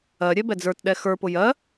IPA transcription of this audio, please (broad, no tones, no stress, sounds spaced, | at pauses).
ɜ ɾʲ ɛ b ɛ d͡z ə˞ t ɗ ɛ x ə˞ p ʊ j ɜ